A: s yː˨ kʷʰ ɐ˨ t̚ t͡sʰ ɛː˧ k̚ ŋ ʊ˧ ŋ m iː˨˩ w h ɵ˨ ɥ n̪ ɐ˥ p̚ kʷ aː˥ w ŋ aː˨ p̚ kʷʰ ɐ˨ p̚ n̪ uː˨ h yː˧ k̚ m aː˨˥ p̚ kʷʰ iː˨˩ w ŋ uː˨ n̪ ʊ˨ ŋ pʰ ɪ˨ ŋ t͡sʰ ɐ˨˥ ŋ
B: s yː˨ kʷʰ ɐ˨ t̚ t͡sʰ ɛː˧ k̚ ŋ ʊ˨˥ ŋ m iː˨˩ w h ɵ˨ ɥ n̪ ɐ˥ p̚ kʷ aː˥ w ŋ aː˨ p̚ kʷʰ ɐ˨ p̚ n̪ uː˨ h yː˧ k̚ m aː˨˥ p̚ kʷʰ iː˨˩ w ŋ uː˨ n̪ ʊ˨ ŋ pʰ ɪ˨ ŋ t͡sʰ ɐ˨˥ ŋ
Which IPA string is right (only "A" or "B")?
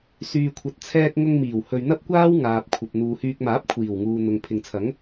A